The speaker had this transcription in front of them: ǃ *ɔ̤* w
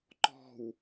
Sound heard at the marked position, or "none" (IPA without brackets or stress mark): ɔ̤